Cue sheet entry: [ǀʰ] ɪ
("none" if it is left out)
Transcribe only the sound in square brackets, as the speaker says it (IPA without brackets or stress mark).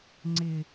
ŋ͡ǀ